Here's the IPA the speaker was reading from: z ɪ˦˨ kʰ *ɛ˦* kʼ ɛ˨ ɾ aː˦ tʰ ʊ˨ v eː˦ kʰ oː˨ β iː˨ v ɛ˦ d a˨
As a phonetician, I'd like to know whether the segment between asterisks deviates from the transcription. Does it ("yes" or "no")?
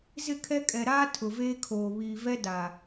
no